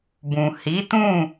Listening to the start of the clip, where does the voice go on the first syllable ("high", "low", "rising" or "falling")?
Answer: low